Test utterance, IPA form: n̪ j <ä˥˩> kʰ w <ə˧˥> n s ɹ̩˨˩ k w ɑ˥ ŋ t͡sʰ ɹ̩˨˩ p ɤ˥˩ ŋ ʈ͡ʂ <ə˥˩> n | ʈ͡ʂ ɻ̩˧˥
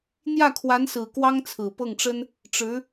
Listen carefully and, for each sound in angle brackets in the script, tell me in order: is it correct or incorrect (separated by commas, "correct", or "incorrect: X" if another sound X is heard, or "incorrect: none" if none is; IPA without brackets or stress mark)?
correct, incorrect: a˧˥, incorrect: ə˥